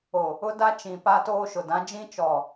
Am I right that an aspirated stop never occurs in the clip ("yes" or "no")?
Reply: yes